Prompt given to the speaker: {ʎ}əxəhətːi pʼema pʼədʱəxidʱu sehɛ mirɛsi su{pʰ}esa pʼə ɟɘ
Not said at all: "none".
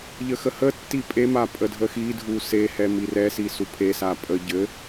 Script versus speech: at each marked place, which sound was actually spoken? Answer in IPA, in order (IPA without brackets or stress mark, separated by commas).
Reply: ʎ, pʰ